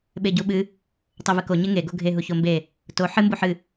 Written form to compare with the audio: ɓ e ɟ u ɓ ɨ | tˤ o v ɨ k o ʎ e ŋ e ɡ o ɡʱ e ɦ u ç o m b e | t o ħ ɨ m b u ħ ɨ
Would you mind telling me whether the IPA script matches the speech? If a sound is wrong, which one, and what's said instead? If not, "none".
ʎ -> ɲ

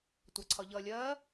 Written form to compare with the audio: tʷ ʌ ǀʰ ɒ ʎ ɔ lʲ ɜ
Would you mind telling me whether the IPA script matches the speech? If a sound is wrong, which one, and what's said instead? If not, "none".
ɔ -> ʌ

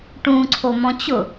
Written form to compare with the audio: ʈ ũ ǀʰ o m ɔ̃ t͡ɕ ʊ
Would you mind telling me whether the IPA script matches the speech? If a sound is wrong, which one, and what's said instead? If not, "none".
none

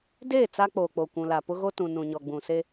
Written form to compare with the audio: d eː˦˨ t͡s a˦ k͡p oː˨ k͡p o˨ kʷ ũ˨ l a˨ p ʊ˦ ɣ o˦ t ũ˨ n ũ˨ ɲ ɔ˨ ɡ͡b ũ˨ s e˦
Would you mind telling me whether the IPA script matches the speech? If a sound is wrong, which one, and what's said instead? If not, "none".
none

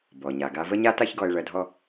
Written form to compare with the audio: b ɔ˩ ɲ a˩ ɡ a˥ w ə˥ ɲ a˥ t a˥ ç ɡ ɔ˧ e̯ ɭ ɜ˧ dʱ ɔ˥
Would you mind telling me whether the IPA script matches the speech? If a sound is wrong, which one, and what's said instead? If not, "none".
w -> v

